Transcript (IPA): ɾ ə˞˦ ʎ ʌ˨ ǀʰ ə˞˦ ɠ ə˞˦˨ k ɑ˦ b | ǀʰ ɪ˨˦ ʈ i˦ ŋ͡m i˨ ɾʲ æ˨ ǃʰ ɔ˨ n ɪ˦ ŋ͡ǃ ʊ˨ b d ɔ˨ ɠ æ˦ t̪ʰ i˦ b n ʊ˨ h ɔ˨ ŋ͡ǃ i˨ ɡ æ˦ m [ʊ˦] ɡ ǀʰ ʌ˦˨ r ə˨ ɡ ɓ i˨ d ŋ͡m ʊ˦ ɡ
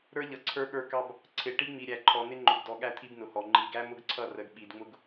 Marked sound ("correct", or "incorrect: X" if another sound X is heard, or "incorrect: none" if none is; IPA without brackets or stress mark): correct